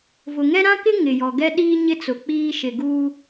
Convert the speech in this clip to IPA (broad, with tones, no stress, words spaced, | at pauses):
vʊ˨ŋɛ˦ɾã˦kɪ˦ ŋɪ˨jɔ˨ɡɛ˦ ɗiː˦ɲɪ˦ t͡sʊ˨k͡piː˦ʃɪ˨ɡuː˦